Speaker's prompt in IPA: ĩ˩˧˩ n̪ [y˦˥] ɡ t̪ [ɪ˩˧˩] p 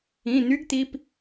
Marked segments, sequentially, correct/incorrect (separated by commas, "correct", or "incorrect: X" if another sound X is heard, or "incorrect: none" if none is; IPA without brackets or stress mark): correct, incorrect: i˩˧˩